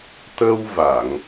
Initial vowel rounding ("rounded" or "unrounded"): unrounded